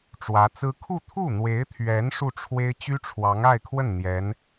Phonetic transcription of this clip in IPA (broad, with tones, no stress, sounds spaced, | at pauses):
ʈ͡ʂ w ä˧˥ t͡s ɹ̩˥ kʰ u˥˧ t̪ʰ u˥˩ n̪ w e˧˥ ɪ̯ t̪ʰ ɥ ɛ˧˥ n ʂ u˥˩ ʈ͡ʂʰ w e˥ ɪ̯ t͡ɕ y˥ ʈ͡ʂʰ w ɑ˧˥ ŋ a˥˧ ɪ̯ kʰ w ə˥˩ n n̪ j ɛ˧˥ n